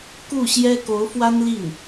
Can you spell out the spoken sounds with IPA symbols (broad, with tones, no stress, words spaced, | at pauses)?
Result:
ku˥˩ɕjɛ˥ko˧˥ʊ̯fwa˥n li˥˩n